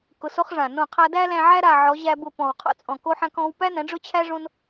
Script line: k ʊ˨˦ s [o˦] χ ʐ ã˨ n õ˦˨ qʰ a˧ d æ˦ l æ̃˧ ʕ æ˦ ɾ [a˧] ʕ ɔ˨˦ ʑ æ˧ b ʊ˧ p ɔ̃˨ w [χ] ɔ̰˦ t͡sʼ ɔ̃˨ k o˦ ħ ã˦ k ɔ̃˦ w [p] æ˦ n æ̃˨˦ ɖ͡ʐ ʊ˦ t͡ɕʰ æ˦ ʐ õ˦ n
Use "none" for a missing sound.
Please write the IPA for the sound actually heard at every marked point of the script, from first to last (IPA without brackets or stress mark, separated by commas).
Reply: o˦, a˨, qʰ, p